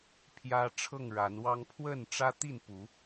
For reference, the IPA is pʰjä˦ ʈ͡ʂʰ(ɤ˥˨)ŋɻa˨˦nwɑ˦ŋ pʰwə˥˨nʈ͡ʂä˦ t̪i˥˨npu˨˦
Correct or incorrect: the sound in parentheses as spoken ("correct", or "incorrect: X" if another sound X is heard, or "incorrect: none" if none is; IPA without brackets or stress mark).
correct